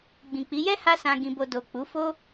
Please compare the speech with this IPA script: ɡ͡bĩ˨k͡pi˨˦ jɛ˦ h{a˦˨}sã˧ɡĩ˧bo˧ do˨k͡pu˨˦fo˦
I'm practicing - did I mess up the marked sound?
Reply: yes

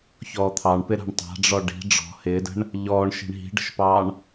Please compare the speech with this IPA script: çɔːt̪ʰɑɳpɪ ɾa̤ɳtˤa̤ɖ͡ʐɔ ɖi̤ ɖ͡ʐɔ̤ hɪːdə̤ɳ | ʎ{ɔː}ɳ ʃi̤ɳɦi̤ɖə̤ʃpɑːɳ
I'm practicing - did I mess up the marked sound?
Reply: no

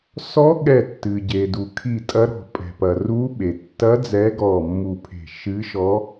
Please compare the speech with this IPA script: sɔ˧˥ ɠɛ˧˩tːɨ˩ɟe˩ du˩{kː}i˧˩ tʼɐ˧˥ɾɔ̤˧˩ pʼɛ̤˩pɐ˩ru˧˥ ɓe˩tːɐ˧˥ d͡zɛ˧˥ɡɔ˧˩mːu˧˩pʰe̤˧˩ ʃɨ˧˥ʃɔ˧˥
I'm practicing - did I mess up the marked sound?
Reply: yes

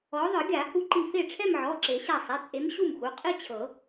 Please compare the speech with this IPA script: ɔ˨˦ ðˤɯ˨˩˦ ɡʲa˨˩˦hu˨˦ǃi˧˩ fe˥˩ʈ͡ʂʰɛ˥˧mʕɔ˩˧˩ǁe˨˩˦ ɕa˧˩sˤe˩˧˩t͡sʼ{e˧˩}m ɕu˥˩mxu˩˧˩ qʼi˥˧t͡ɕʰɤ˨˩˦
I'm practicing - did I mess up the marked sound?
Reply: yes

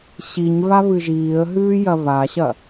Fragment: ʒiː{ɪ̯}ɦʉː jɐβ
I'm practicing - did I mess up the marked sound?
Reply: yes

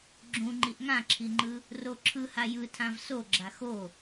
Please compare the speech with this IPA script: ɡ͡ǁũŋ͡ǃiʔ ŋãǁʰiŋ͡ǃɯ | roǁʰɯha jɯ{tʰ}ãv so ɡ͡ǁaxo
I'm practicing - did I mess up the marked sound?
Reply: no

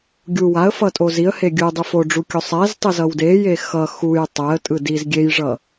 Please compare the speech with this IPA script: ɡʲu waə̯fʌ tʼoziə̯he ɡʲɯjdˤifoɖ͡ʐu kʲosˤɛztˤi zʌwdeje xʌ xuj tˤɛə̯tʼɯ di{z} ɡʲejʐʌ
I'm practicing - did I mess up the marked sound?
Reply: no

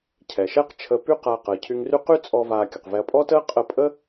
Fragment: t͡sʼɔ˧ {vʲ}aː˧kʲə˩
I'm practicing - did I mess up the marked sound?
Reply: yes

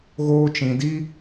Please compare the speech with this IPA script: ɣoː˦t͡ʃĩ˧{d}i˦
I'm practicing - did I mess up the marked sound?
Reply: no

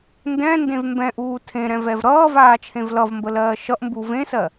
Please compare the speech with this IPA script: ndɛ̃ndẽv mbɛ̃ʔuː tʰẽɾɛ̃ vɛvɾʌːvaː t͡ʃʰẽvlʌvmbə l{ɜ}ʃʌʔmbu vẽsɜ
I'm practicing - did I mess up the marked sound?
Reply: yes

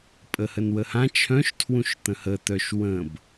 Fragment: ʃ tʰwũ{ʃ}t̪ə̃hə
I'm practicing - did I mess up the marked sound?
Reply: no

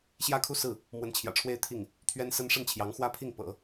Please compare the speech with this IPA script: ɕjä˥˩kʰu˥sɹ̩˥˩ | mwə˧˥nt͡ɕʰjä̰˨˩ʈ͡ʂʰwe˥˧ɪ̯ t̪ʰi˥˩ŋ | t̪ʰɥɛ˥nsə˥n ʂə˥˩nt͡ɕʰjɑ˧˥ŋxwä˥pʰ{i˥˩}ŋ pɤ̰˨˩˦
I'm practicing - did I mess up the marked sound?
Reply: no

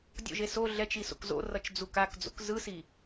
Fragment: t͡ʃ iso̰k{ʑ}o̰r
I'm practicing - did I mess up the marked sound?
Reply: yes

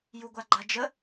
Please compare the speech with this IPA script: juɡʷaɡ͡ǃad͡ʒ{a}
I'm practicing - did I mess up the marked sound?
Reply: yes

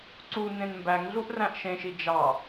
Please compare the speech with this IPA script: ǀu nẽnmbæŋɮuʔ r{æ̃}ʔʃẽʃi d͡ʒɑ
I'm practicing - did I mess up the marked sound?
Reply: no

